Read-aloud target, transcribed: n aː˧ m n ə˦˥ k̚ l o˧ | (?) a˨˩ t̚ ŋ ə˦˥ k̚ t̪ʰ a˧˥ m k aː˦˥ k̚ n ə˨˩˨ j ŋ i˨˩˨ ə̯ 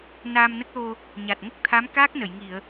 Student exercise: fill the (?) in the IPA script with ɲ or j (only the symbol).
ɲ